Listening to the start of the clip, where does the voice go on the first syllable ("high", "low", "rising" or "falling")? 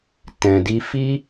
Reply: low